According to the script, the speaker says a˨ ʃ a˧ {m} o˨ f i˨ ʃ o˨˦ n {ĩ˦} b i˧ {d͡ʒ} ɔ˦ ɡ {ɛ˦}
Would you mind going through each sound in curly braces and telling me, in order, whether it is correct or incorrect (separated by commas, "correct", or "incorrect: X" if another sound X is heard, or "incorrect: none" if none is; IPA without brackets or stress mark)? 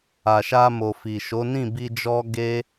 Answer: correct, incorrect: ĩ˦˨, correct, incorrect: e˦